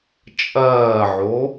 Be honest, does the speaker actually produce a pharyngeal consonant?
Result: yes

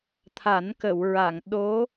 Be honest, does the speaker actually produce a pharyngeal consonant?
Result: no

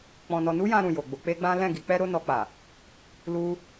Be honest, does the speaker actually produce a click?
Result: no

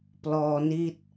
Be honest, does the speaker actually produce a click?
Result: no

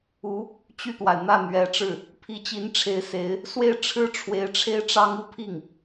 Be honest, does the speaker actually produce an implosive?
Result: no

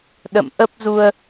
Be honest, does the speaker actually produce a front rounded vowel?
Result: no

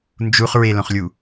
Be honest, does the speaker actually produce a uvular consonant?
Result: yes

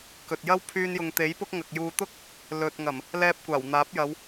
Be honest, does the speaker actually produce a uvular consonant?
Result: no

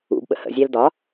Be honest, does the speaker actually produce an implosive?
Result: yes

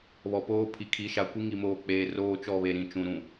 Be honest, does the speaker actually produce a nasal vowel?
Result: yes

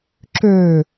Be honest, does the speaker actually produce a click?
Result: yes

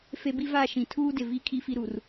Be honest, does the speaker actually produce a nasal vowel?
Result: yes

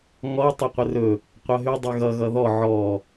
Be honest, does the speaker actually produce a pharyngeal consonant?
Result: yes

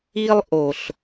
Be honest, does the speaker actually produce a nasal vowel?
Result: no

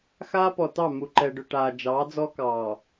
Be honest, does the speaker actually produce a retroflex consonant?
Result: yes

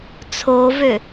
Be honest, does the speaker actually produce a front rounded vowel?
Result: yes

